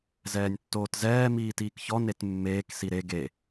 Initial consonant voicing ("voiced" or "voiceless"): voiced